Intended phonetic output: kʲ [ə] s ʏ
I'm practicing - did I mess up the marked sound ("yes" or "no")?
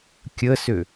no